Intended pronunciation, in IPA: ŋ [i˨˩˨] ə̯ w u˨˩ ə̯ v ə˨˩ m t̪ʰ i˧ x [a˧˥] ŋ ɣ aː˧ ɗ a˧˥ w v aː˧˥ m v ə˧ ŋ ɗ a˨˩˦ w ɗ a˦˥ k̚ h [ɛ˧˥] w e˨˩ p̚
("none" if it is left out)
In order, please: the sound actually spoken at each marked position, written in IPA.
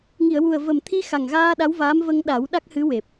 i˨˩˨, a˨˩, ɨ˧˥

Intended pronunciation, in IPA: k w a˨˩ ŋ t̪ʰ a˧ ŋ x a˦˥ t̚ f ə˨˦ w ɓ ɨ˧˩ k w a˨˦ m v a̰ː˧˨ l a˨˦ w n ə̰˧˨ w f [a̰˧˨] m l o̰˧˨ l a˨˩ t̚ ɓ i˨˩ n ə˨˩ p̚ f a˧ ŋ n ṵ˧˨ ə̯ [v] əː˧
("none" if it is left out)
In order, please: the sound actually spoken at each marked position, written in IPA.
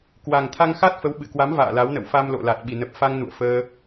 a˧, f

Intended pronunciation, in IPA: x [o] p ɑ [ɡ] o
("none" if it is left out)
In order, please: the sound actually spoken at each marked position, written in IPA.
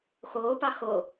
oː, x

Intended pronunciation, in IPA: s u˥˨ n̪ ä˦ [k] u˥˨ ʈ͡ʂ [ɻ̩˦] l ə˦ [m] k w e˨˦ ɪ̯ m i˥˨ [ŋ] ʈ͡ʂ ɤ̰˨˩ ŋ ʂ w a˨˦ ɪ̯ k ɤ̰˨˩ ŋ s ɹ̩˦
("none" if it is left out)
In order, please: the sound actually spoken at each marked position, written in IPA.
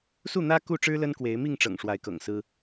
k, ɻ̩˦, n, ŋ

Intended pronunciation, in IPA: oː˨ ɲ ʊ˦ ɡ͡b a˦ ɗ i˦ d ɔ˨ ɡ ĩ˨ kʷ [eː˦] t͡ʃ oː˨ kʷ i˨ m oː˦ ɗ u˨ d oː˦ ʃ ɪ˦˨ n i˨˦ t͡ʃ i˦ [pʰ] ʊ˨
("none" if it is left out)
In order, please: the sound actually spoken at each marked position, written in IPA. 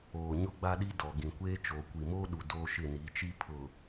eː˦, pʰ

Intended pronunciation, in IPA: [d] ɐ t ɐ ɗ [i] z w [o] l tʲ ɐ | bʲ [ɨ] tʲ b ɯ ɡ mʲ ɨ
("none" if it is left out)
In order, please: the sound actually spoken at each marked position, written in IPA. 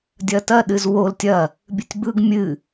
dʲ, ɨ, o, ɨ

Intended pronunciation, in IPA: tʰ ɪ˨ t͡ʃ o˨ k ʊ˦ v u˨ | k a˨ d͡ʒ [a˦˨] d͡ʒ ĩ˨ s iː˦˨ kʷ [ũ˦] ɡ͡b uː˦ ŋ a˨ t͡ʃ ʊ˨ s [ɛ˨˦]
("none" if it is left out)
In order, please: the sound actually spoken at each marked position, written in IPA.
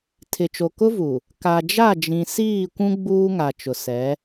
a˦˨, ũ˦, ɛ˨˦

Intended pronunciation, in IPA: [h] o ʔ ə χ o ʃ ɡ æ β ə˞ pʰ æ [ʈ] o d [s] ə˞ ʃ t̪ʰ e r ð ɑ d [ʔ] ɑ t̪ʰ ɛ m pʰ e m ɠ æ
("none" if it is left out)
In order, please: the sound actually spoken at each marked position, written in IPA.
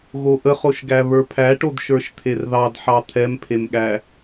ɣ, ʈ, ʃ, ħ

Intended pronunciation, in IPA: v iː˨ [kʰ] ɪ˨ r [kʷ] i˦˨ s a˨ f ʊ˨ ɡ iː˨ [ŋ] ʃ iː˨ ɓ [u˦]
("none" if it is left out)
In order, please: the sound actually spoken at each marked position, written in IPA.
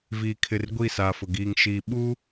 kʰ, ɡʷ, ŋ, u˦

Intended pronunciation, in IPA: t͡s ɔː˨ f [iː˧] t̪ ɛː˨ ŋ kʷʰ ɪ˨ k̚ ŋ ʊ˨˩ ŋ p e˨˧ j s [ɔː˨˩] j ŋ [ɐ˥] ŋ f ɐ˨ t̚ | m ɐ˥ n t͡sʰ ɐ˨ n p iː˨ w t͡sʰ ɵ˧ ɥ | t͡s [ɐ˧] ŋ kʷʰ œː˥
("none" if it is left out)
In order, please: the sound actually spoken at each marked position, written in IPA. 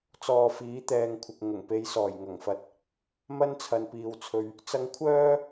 iː˨˥, ɔː˨˩, ɐ˨˩, ɐ˧

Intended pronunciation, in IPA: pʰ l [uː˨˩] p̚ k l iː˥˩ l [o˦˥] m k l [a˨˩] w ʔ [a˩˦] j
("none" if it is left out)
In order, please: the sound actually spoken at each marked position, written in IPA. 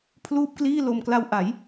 uː˥˩, o˧, a˧, a˩˦

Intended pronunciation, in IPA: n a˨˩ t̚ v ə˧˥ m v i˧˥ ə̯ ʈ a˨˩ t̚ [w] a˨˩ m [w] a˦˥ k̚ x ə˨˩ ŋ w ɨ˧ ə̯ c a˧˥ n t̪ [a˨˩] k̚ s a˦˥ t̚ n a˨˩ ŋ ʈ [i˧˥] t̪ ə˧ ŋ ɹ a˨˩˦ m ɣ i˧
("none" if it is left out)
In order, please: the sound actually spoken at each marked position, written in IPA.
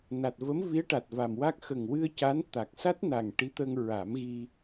v, w, a˨˩, i˧˥

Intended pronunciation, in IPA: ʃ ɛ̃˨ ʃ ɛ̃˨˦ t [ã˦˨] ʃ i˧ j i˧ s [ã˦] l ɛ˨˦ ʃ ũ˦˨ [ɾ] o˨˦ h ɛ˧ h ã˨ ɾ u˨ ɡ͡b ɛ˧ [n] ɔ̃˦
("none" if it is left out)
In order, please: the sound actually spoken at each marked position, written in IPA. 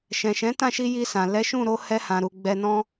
ã˦˨, ã˨, ɾ, n

